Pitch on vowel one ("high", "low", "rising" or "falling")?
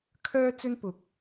high